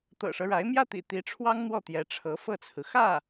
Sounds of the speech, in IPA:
t̪ɤ̰˨˩ʂɤ˦ɻa˧˥ɪ̯ mjä˥˩t̪ḭ˨˩ t̪i˧˥ʈ͡ʂʰwɑ˥ŋn̪wɔ˥˩ t̪jɛ˧˥ʈ͡ʂʰɤ˧˥fɤ˥˩t͡sʰɹ̩˩ xä˥˩

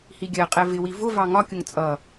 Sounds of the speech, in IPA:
hiɡʲɜqʼɛ vɪwi vʊ vɑŋɒkʲʊŋ t͡sʼʌ

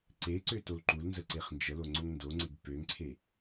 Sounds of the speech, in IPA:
ǀe ǀøtolǃulnzə ǀeχnd͡ʒəlo ŋ͡ǀoŋndoŋ͡ǀeɡ pøŋǀʰe

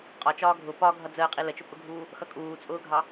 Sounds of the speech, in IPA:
qʼɒt͡ʃɒː ɡʱʊ pɒ ɡʱʌd͡zəːqʼi lət͡ʃʊpʼʊɡʱuː | xʌkʼuːt͡sʼʊːɡʱɑ

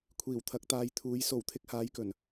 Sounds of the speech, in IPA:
kʷʰiː˨˩wt̪ʰɐ˨˥k̚t̪aː˨˧jt̪ʰuː˨˧j so˨˩w t̪ʰɪ˨˥k̚haː˨˧jkɵ˨˩n

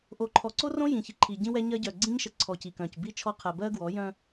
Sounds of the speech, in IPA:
ʔo˨ǃʰɔ˨ǀo˦rõ˦ jĩ˨çi˨ǃʰi˨ ɟĩ˦wɛ˦ ɲɜ˦ ɟœ˨ɡ͡ǀĩ˦ɲʃə˨ǀʰɔ˨ ci˨kœ̃˨c bi˦t͡ʃʰɔ˦ qʰɛ˨bɜ˦ɡwɔ˨˦ jœ̃˦

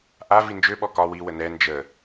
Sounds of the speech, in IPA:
ʔa vind͡ʒøɓɔ kɒ wiwə nɛ nd͡ʒə

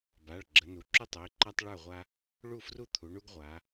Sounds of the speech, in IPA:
ba˩˧˩ɭ ɡ͡ǁə˩˧nu˩˧ ǁu˦tˤə˩˧˩i̯ǃa˦tˤ ɭə˞˥˩ʁʷa˦ | ɭu˥˩fru˥˩t̪ʰu˩˧ ɳu˦ɡʁʷa˩˧

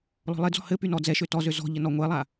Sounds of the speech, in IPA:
lɔ̤lˠed͡zɔ̤ hɘ pynɔd͡zɛ ʃøtɔzø zɔ̤ʎə nɔŋʷelˠa

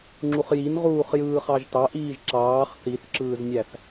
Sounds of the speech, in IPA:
ŋ͡ǁuχjinʁuːχ jɯːχɑʒtɑʔiːʒ ǁɑːχ θiθǁɯːznʲæθ

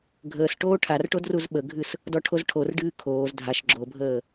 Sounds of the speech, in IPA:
ɡʱəːsʈoː ʈʰarʈod ruzɓəɡʱɨs | dɔʈʰozʈʰorɖɨː kʰoːz dʱaʃ ɡ͡ǁobʱəː

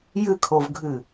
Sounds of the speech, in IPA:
jɨkʰovɡʱɨ

